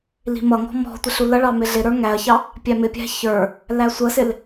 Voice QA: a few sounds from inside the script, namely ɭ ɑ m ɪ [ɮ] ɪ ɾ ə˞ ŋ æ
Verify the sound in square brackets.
correct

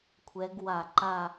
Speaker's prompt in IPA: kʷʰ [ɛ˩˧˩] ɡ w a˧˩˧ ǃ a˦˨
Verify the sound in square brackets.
incorrect: ɛ˨˦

